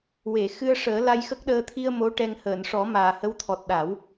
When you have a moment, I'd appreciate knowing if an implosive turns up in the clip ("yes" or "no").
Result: yes